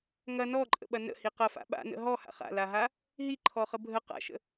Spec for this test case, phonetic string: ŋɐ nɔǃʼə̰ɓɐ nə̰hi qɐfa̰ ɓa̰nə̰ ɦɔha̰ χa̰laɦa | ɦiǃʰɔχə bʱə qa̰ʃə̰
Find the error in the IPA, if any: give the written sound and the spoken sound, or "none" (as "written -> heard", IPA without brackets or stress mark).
none